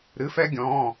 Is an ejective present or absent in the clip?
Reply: absent